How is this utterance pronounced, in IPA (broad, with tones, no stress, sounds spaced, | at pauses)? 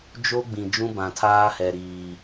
d͡ʒ o˦ ɡ͡b ĩ˨ d͡ʒ ũ˦ b ã˨ tʰ aː˦ h ɛ˨ ɾ iː˨